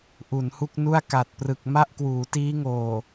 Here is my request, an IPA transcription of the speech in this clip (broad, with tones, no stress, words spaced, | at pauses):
ʔu˩˦nhu˥˩k̚nu˥˩a̯ ka˨˩t̚prɯ˨˩k̚ ma˥˩ʔkwuː˩˦tiː˦˥ŋoː˨˩